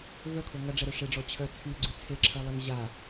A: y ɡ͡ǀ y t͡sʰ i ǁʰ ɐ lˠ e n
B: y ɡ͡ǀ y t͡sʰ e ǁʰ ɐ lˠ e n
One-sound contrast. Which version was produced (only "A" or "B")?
B